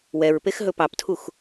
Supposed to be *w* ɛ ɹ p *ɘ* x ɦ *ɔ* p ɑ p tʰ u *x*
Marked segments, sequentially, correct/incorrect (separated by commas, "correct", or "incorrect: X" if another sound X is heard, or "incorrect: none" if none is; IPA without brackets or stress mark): correct, incorrect: e, incorrect: ɵ, correct